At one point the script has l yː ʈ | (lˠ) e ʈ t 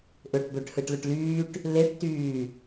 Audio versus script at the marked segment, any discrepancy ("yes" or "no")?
yes